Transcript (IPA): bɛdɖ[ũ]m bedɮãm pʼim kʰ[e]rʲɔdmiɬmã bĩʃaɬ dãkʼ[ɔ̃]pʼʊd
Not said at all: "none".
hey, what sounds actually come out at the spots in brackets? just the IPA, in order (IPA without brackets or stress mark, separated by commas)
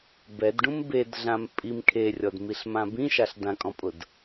ũ, e, ɔ̃